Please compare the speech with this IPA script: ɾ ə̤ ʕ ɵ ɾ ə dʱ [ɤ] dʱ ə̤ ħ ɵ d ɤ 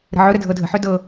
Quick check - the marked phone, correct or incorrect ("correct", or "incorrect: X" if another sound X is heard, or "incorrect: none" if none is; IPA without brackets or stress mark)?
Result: correct